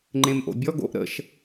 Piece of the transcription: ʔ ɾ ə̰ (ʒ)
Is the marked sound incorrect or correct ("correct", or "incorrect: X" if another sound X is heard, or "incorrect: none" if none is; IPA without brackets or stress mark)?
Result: incorrect: ʃ